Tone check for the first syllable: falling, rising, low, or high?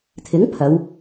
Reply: rising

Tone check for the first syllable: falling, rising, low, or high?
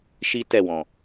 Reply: high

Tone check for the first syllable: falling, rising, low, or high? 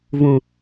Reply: low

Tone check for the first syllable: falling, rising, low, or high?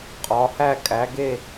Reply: rising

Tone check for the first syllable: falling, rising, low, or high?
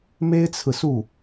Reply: high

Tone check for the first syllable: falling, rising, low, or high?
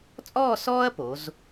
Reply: falling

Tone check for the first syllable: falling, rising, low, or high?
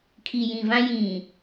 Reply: low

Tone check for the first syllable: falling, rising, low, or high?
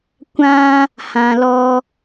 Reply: high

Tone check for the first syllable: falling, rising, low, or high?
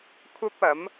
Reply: high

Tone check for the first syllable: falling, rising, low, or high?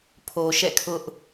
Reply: low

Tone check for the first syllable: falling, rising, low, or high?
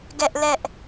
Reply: high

